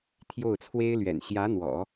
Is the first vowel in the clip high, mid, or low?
mid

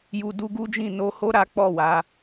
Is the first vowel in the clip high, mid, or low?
high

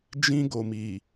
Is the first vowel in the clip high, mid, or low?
high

